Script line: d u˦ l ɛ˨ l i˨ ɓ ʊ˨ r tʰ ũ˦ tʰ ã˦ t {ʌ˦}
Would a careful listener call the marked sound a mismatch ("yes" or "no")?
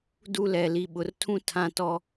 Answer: yes